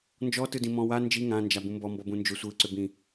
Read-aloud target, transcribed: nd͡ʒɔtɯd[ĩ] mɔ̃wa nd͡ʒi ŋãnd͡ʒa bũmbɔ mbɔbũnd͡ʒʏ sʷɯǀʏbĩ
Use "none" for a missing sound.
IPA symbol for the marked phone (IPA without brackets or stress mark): ĩ